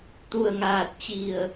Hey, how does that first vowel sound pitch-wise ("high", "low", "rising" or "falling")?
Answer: low